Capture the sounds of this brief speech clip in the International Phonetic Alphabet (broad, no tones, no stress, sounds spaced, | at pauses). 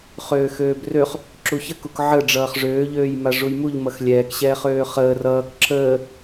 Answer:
χ øː x øː b r ø χ | ǁ u ç ə k u k ʕ ə ɖ͡ʐ ʌː χ ʐ øː ʎ øː j m a ʐ u j m u ʎ m ʌ x lʲ ɛː k ɕ ɛː χ øː χ əː r ʌː k ǁ əː